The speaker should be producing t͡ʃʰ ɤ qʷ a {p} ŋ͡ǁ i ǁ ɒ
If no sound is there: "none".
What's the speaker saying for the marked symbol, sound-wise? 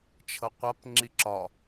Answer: p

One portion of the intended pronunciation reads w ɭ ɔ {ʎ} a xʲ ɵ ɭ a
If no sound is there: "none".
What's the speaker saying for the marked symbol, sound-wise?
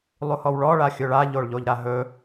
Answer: ɭ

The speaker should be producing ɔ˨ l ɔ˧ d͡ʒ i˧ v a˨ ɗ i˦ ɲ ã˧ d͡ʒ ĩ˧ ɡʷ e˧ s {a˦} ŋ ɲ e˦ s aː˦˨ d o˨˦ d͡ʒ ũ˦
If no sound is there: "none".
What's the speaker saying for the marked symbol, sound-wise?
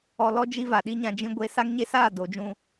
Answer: a˦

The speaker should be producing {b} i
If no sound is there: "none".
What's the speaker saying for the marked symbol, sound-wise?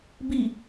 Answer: b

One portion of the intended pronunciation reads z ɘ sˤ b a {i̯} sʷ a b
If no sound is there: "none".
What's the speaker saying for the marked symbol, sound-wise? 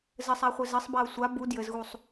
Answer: u̯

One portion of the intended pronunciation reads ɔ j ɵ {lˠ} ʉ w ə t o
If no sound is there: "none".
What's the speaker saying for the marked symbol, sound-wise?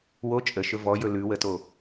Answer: l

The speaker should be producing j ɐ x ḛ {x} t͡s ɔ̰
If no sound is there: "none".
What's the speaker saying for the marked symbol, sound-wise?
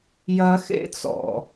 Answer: none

